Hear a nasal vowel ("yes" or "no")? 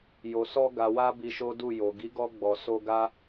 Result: no